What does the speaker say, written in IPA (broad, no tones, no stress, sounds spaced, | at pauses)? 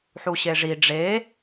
ħ u ɕ e ʐ i ɖ͡ʐ e